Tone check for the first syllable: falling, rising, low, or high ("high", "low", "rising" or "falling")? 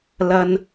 low